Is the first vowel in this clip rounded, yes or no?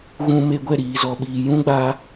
yes